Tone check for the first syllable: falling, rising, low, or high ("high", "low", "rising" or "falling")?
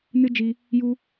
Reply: high